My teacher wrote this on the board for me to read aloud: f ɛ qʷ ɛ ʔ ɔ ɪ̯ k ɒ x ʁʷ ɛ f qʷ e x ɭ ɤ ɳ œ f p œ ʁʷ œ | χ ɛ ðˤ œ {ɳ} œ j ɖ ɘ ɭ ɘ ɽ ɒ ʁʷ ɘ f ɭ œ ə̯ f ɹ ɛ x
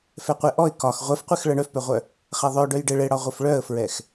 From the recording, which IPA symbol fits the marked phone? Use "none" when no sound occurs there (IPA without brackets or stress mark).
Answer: ɖ